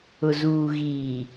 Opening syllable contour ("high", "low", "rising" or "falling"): low